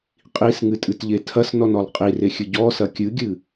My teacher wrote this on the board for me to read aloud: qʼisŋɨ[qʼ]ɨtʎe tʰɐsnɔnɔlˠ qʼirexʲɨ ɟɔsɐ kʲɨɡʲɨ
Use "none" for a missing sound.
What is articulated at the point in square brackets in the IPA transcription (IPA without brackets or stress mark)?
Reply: tʼ